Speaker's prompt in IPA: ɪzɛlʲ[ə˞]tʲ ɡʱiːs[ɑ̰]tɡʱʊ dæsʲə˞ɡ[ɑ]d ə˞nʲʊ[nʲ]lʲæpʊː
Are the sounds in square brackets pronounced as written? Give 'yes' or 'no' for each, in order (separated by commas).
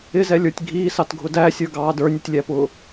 yes, no, no, no